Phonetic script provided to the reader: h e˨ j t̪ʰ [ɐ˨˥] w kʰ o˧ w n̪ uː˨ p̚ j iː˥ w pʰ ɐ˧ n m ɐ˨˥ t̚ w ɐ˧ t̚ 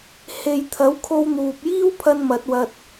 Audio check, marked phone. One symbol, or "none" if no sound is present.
ɐ˨˥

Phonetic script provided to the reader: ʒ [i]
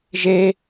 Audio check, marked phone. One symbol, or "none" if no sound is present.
e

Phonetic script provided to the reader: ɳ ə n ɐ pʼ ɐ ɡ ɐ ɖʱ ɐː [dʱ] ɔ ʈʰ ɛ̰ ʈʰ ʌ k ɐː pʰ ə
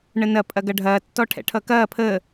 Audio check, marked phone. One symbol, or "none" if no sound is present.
tː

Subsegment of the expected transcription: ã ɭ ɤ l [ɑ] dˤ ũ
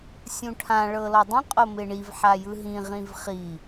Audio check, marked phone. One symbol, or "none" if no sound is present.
ɔ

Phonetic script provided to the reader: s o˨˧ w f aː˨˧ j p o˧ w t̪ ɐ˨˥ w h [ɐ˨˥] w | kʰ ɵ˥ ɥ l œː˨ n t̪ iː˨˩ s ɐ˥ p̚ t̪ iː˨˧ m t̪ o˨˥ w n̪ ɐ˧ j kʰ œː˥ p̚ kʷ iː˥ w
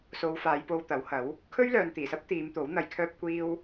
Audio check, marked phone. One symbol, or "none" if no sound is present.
ɐ˨˥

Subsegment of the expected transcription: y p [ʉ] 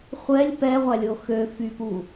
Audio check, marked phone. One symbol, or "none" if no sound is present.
u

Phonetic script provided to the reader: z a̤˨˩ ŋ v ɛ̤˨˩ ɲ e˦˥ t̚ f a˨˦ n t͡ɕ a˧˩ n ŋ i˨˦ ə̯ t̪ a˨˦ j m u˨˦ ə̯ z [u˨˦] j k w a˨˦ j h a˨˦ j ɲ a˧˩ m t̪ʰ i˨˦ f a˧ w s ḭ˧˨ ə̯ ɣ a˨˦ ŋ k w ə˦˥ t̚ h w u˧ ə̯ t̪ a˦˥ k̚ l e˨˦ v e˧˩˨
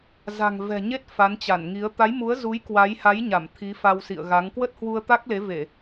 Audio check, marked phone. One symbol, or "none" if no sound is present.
u˨˦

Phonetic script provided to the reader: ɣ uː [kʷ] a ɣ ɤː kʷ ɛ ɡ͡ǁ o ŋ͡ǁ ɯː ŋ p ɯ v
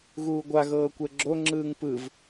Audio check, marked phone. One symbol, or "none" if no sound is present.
ɡʷ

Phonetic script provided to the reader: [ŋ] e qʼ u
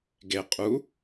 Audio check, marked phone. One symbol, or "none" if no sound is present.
ɡ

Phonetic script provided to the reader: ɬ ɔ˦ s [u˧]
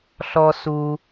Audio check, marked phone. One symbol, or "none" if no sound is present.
u˧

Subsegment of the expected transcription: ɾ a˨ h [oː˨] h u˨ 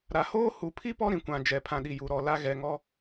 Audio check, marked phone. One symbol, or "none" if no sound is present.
oː˦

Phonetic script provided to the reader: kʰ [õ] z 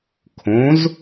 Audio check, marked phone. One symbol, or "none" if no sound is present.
õ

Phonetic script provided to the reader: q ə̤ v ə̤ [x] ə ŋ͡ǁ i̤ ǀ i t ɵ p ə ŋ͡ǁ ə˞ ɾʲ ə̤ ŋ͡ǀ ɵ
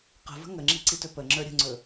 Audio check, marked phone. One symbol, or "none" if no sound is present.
ŋ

